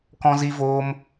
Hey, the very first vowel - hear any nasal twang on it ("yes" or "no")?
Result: yes